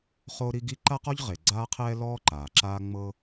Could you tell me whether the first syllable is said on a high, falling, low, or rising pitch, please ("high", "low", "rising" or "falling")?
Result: high